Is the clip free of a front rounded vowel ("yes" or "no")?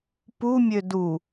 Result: no